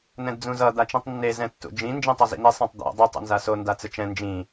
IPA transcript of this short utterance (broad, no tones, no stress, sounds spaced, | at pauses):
n ɛ̃ d d͡z ũ z ʌ d̪ a t͡ʃ ĩ tˤ nː e z ɛ̃ tː ṵ d͡ʒ ĩ n d͡ʒ ĩ tˤ ʌ z ḭ n̪ i sˤ ĩ tˤ d̪ o̰ dˤ i tˤ ṵ n z a s o n d a t͡s ɯ t͡ʃ ɛ̃ n d͡ʒ ĩ